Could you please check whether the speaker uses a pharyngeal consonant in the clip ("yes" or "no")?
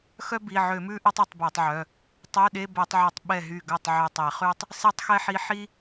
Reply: yes